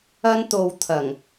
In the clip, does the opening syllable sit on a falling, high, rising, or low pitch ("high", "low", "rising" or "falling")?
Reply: high